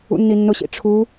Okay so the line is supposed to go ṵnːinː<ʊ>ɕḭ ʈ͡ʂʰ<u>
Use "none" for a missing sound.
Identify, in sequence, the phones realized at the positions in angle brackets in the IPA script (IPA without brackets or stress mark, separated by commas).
ʊ, u